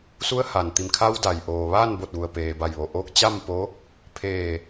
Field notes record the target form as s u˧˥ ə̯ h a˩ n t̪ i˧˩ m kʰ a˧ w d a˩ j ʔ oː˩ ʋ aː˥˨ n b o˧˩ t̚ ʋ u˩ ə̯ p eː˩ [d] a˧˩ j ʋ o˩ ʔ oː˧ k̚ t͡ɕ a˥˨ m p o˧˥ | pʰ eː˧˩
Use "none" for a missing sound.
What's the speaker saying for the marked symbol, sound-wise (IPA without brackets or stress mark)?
b